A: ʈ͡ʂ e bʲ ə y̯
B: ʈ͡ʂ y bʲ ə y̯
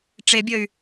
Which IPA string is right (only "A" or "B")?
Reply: A